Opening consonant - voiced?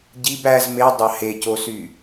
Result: yes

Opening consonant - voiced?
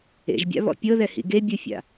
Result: yes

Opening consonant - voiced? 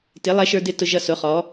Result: no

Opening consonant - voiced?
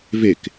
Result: yes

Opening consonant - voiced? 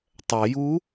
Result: no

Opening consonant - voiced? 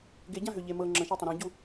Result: yes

